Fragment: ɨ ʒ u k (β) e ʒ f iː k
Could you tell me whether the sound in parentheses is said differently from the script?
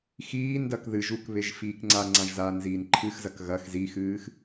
no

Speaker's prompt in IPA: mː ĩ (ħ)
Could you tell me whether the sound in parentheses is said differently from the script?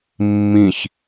yes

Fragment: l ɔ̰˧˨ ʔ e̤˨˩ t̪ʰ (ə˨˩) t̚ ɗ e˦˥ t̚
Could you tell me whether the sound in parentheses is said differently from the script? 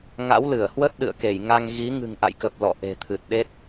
yes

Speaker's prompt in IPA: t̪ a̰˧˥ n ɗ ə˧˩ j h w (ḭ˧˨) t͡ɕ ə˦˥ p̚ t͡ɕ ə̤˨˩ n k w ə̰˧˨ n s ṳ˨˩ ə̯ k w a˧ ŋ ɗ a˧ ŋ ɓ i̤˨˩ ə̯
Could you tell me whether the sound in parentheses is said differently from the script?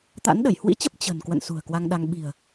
yes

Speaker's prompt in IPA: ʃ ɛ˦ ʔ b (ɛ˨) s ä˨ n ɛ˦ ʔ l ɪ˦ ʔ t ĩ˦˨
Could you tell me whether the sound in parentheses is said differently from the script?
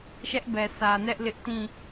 no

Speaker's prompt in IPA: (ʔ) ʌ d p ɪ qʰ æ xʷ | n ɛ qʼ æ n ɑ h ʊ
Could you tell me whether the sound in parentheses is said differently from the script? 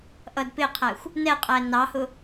no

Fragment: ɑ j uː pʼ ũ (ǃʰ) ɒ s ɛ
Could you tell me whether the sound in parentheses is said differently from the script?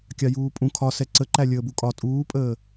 yes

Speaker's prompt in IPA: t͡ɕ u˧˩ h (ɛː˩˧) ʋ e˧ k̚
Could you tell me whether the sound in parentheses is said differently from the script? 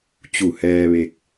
yes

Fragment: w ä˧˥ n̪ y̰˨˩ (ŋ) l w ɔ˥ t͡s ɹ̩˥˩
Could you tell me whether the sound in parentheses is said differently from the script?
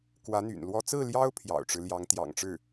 yes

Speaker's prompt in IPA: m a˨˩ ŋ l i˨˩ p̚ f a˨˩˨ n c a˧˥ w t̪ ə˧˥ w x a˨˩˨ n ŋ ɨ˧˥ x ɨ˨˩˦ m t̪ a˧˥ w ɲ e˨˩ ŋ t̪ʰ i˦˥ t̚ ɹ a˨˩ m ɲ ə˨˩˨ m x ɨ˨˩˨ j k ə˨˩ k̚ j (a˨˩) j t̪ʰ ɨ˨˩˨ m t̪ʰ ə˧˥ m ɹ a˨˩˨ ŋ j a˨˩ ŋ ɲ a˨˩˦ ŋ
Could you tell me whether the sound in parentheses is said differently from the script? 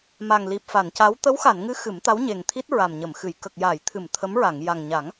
yes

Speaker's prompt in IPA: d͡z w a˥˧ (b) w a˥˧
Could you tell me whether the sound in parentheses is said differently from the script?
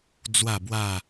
no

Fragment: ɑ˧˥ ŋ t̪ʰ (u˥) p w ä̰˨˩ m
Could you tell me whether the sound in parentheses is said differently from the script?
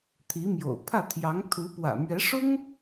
yes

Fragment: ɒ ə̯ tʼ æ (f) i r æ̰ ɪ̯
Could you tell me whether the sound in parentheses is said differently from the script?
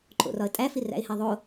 no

